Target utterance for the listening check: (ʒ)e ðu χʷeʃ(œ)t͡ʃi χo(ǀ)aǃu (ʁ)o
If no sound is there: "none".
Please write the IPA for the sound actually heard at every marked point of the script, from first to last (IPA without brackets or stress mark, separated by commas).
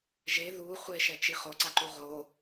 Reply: ʒ, ɛ, ǀ, ʁ